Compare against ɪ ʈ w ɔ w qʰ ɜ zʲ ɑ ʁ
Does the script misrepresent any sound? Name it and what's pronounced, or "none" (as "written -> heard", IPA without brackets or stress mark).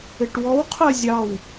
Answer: ʁ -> w